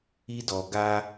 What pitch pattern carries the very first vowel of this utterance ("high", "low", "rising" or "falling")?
high